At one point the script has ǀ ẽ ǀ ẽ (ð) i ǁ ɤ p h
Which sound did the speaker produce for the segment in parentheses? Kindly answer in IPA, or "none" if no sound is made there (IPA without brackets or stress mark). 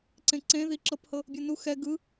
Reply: ð